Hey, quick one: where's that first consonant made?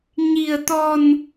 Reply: palate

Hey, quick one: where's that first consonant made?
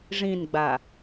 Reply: retroflex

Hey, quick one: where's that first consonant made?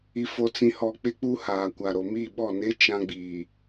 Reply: lips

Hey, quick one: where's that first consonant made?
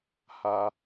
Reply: throat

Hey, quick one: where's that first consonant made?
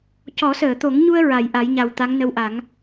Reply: palate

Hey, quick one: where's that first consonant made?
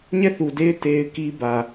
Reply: palate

